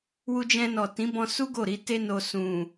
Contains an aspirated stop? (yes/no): no